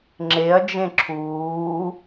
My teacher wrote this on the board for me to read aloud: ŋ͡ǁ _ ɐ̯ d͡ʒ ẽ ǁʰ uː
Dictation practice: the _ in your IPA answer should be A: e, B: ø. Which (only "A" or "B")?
A